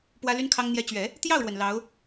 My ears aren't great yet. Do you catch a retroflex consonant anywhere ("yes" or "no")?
yes